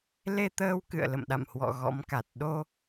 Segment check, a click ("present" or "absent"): absent